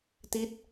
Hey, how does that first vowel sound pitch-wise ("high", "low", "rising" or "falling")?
falling